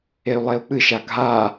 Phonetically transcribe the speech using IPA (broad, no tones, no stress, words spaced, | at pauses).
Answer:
ey̯lˠeu̯k͡pɨʃa ɡʱa